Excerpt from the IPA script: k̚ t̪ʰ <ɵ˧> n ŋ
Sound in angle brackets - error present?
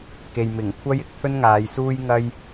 yes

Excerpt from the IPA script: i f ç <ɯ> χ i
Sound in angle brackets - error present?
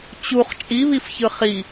no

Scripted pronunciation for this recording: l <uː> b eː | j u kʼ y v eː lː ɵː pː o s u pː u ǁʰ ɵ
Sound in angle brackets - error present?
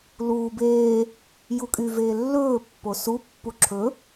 no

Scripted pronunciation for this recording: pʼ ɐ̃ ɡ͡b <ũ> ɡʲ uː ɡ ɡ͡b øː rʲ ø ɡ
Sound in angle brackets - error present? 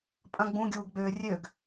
no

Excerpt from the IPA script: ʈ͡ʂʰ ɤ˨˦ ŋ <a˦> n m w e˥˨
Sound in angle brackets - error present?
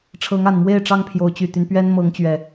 yes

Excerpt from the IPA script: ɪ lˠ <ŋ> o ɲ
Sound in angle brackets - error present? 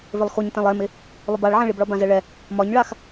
yes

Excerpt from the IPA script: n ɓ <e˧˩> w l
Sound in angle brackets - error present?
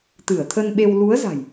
yes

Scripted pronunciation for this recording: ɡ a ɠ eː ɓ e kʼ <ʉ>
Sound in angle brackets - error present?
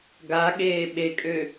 yes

